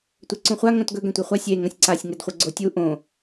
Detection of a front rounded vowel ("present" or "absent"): absent